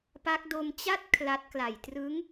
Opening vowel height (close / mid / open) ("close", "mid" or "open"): open